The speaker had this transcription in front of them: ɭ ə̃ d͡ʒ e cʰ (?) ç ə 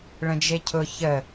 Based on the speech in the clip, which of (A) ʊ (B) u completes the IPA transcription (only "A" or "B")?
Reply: A